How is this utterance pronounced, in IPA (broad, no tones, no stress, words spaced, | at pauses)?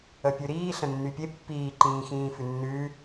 əpʲʉɾiː ɬə̃nːypʲe pːiːǃĩːxĩː fʉnːʉː